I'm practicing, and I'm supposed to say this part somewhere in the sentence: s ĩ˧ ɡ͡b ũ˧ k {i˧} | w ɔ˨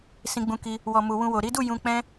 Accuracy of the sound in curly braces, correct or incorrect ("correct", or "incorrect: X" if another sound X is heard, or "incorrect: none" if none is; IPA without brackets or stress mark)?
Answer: correct